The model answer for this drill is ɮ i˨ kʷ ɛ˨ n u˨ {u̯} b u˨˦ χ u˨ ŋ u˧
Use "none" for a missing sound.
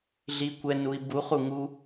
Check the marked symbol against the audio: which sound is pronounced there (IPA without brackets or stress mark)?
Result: i̯